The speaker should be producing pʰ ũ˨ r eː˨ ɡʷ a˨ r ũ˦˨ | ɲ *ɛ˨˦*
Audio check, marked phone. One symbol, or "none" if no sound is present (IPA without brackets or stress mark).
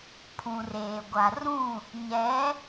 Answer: ɛ˨˦